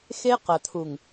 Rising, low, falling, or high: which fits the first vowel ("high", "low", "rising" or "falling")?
high